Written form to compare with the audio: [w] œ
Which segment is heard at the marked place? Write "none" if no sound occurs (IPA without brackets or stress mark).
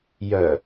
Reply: j